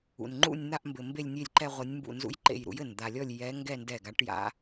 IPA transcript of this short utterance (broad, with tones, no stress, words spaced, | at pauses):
ṵ˩nŋ͡ǃṵ˥˧nʲn̪a˥˧ʔ mbɘ˩ mbe˥˧lʲnʲe˥˧lʲǃɛ˥˧ʁʷɐ˧˥nʲ mbṵ˧˩nzṵ˧˥jǃḛ˧˩j ɾṵ˧˥jɘ˧˩nd̪a˨˩˦lʲɔ˥˧lʲ jɛ˧˥ ŋɡɛ˥˧ ndɛ˧˩ ɡa˨˩˦ʈja̰˧˥